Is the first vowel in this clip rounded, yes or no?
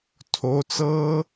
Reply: yes